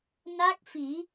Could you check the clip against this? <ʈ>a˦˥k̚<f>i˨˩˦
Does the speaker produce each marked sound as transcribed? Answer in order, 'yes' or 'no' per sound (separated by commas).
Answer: no, yes